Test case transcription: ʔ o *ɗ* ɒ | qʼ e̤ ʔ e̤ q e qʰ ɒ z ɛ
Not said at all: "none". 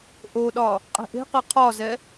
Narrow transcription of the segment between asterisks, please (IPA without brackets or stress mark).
ɗ